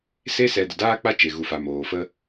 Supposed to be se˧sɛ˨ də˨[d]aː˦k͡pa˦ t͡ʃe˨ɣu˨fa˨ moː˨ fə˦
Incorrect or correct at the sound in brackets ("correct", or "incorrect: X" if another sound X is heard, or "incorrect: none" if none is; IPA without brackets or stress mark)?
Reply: correct